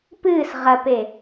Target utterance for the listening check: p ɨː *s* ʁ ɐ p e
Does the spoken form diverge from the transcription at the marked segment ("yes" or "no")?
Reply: no